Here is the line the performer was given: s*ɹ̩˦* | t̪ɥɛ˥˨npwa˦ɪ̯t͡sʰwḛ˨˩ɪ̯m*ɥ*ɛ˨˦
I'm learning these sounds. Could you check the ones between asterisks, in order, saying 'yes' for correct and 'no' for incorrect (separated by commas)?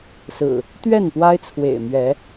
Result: no, yes